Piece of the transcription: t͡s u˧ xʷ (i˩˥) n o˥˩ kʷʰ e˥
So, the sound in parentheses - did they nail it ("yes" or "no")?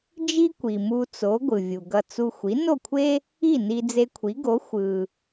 yes